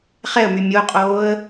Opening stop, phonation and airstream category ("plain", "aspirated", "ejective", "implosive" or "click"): ejective